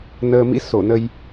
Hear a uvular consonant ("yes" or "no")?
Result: no